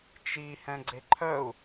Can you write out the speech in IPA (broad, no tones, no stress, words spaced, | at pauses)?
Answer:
t͡ʃihɛ̃ ɡ͡ǀeǃʰœu̯